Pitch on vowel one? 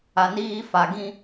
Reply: low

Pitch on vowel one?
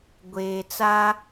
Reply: low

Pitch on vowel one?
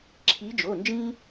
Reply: rising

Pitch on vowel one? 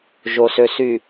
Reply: low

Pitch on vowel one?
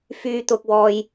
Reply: low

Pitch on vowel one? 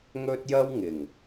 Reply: high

